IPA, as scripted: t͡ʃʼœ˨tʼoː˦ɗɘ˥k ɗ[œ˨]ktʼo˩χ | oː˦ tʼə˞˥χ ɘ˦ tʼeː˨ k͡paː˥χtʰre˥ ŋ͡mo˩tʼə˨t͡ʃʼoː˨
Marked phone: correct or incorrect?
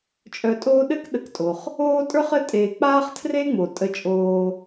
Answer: incorrect